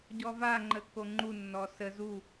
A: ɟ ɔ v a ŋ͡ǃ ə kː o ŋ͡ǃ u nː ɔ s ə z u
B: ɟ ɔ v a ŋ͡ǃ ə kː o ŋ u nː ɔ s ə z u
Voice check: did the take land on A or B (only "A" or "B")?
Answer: A